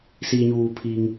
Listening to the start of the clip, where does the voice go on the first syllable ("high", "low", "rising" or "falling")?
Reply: low